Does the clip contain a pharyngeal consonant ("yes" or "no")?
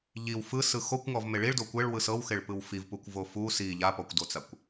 no